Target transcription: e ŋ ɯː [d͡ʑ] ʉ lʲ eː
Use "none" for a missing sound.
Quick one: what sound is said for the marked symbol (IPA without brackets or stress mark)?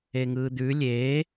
d̪